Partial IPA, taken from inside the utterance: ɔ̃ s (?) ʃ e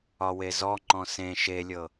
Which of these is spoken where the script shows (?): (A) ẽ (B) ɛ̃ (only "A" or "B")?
A